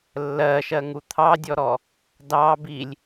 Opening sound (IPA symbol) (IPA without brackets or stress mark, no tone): lː